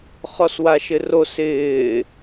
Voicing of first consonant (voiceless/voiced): voiceless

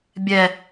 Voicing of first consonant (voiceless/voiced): voiced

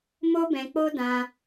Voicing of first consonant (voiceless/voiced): voiced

